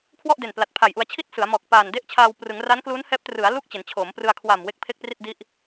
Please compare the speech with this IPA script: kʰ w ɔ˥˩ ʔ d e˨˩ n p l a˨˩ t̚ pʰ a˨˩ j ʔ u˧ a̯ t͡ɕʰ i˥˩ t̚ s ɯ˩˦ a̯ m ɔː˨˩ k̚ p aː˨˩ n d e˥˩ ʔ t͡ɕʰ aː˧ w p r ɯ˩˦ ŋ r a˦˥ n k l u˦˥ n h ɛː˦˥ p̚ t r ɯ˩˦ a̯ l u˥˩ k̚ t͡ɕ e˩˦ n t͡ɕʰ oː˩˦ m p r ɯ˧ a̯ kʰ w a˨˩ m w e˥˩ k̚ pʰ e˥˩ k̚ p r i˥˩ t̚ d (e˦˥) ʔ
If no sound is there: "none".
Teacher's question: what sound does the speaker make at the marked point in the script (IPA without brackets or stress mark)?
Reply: i˦˥